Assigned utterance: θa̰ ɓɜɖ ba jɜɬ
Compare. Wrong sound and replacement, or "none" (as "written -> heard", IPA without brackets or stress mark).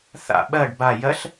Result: none